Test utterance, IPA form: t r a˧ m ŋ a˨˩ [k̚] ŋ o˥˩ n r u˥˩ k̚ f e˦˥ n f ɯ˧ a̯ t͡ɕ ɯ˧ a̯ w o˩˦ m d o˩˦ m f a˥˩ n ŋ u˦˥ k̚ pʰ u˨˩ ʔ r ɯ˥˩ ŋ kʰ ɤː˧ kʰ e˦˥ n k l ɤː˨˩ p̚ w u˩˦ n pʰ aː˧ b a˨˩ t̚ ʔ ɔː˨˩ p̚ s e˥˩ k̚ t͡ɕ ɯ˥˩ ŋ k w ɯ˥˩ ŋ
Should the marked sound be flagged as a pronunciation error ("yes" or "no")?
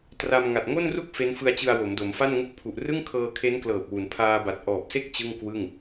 yes